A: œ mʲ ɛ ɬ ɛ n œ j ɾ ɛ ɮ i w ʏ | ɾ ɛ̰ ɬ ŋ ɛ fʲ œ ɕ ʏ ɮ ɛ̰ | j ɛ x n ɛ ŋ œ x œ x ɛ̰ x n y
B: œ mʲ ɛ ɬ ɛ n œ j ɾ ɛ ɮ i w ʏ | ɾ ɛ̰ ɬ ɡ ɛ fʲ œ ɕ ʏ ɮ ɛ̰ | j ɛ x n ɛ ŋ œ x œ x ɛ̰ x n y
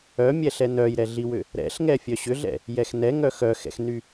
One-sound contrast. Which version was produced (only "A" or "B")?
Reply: A